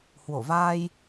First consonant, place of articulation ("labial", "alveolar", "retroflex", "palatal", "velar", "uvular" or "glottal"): glottal